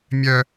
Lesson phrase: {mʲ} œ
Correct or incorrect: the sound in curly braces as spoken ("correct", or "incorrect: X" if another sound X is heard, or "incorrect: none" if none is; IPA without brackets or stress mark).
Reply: correct